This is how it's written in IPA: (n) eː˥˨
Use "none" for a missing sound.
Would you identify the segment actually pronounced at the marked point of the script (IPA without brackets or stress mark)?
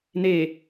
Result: n